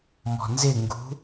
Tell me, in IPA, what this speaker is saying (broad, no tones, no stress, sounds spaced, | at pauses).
m ɔ̤ n z ɪ ŋ ɡ ṳ